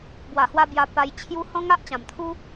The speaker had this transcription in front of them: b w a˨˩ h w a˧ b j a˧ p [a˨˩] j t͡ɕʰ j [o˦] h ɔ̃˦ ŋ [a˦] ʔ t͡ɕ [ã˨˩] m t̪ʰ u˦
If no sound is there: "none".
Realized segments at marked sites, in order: a˧, u˦, a˦, ã˨˩

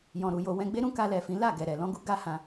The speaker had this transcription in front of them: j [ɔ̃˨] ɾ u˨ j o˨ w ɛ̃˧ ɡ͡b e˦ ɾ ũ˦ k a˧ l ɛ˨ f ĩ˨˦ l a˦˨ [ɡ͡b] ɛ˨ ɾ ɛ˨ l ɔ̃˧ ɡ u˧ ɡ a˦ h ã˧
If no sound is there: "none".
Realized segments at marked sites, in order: ɔ̃˨, ɡ

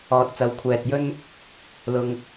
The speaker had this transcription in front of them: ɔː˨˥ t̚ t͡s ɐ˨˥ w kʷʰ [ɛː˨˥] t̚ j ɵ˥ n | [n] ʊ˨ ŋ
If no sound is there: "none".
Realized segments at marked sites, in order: ɛː˨, l

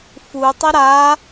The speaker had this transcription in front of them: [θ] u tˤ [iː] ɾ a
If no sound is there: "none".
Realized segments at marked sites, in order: f, i

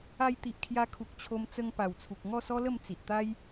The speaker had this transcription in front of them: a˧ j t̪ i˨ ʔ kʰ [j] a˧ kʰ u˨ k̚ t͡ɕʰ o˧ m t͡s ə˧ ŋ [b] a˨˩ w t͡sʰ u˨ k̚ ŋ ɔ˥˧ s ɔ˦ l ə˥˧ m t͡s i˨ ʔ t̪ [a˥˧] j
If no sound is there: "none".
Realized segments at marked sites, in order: j, p, a˦

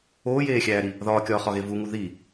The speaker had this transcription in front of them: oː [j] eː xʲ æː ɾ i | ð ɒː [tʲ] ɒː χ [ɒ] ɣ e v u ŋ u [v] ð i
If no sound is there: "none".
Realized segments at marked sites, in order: j, kʲ, ɒ, none

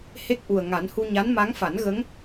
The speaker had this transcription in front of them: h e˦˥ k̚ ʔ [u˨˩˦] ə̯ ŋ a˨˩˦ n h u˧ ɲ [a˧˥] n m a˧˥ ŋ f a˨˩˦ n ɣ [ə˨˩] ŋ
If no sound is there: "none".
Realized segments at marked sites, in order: u˨˩, a˧˥, ə˧˥

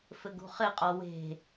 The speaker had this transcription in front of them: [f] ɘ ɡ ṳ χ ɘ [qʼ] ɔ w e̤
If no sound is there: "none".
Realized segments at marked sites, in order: f, qʼ

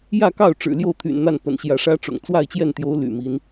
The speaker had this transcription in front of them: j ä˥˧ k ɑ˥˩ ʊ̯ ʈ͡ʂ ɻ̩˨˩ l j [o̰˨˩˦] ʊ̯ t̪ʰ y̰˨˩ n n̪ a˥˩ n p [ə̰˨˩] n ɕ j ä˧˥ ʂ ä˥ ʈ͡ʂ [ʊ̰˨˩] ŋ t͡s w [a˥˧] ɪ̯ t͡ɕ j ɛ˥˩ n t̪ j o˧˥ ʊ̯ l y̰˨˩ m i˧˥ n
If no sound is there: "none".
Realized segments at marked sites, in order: o˥˩, ə̰˨˩, ʊ̰˨˩, a˥˧

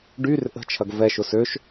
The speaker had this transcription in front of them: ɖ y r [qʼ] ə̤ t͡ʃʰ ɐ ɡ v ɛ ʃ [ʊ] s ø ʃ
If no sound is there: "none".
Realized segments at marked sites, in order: ʔ, ʊ

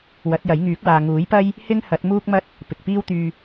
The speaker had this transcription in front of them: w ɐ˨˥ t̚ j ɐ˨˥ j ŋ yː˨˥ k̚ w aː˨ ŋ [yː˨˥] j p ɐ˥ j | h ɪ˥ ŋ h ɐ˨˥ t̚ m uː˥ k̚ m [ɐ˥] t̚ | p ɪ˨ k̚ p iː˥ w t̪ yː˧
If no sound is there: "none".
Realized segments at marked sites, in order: uː˨˥, ɐ˥

